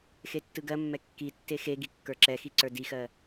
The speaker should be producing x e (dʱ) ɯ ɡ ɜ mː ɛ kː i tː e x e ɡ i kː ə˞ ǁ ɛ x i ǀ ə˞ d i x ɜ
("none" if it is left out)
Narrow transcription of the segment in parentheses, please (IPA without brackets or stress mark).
tː